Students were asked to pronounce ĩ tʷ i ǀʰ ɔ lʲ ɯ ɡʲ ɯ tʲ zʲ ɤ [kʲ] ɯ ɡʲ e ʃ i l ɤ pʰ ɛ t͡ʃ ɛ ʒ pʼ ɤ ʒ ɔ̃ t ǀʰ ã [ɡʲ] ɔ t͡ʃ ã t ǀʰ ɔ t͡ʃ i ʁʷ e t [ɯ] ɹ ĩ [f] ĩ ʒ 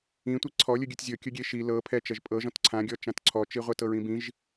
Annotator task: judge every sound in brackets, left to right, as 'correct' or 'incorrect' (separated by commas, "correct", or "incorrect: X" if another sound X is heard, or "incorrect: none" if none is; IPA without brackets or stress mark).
correct, correct, incorrect: ɤ, incorrect: b